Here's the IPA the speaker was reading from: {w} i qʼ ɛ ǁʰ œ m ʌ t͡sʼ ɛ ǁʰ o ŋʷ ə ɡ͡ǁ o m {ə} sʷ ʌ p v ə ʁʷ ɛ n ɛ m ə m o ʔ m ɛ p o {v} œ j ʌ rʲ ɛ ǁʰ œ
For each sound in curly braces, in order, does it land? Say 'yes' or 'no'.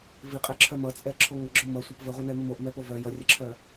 no, no, yes

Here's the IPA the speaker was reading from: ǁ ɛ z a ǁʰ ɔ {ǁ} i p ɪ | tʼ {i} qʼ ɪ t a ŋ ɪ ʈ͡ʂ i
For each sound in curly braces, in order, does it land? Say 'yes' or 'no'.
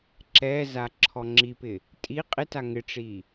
no, yes

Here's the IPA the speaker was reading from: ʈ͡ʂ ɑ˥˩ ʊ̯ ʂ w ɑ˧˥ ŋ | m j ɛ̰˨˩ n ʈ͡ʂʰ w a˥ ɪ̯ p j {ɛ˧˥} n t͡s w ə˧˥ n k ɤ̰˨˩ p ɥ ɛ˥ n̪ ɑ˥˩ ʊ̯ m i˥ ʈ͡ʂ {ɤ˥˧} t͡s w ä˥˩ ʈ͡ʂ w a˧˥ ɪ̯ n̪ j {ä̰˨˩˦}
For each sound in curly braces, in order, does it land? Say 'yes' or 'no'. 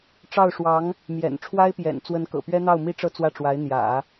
no, yes, yes

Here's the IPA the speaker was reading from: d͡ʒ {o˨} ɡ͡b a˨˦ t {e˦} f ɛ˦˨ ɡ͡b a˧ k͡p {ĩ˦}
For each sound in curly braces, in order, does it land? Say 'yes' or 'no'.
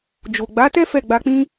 yes, no, yes

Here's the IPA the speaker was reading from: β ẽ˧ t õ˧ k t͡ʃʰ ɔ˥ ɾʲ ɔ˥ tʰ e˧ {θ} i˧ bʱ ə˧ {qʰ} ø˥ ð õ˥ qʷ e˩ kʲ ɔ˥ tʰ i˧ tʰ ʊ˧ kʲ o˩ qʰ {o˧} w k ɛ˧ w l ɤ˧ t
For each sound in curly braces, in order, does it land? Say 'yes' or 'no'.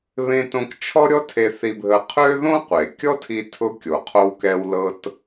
yes, yes, yes

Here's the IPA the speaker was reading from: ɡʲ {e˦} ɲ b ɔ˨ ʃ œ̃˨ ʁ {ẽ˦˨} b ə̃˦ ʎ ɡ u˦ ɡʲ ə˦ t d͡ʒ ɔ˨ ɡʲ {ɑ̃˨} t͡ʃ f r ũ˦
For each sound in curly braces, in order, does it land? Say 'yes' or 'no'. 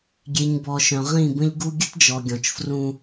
no, no, no

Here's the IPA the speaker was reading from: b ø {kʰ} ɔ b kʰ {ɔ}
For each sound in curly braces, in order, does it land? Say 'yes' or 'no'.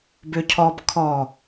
no, yes

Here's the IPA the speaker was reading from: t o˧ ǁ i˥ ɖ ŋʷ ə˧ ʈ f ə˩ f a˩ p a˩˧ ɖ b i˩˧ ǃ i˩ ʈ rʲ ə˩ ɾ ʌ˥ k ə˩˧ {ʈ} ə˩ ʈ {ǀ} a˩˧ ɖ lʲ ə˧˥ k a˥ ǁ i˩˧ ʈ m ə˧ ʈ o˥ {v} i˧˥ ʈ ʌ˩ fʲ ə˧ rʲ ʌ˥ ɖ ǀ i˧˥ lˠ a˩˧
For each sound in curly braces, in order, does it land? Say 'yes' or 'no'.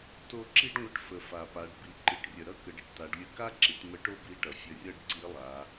no, no, no

